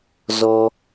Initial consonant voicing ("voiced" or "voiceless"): voiced